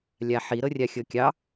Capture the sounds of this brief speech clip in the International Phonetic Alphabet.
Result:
lʲ a ħ i ɾ ɤ rʲ a xʲ ɤ kʲ ɑ

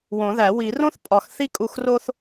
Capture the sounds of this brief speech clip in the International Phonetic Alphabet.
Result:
w õ˨˩˦ ð æ˨˩˦ w i˨˩˦ r õ˥ θ pʼ ɒ˨˩˦ x θ i˥ kʼ u˦˨ x r o˥ θ

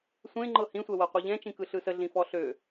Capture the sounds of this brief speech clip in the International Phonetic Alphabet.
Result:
sʷ ẽ ŋ͡ǃ ɤ h ĩ sʷ ɛ w ɤ qʷ e ʎ ɛ̃ t͡ʃ ĩ k ɯ ɬ ɯ s ə ɮ ĩ f ɔ ɬ ø

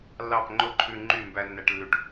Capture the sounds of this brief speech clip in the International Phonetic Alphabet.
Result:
lː ɑ˦˨ p ŋ͡ǃ o˦ ǃʰ ʉ˧ ŋ͡ǃ y˦˨ m b æ˧ nː æ˧ ʈ lː ʉ˧ ʈ

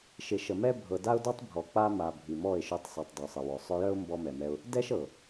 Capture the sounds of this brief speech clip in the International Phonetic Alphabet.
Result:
ʃ ɪ˨ ʃ ə˨ m ɛ˦ bʱ ɤ˨ d a˦ ʊ̯ d ɔ˦ tˤ bʱ ɔ˨ k͡p a˧ m a˨ bʱ i˨ m ɔ˦˨ ɪ̯ ʃ œ˧ tˤ sˤ i˨ tˤ dˤ œ˨ sˤ ə˨ w ɔ˨ sˤ œ˧ j œ˦ ʊ̯ m b ɔ˧ m ɛ˨ m ɛ˧ ʊ̯ | d ɛ˦ ʃ ɤ˨

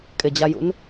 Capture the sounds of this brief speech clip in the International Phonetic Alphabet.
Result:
kʼ ɪ d͡ʑ a j ṵ n

